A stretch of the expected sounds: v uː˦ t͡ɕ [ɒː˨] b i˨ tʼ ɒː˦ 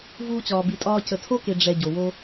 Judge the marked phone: correct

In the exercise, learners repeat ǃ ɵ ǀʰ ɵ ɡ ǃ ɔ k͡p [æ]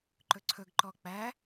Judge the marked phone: correct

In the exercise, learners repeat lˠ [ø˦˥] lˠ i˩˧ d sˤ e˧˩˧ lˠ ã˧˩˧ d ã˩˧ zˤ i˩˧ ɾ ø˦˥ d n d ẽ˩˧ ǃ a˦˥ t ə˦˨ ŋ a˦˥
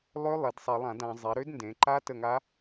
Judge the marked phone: correct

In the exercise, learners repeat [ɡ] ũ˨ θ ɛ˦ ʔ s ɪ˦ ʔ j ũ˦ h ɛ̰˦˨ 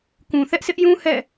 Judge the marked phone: incorrect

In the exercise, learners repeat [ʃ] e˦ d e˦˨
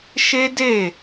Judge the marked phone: correct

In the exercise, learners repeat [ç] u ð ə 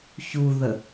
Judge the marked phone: correct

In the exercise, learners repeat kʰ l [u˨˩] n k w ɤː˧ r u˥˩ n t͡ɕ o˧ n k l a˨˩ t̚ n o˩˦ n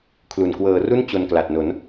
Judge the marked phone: correct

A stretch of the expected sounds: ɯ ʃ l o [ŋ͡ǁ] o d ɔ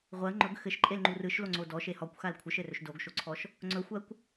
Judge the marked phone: incorrect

